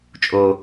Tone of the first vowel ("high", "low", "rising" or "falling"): low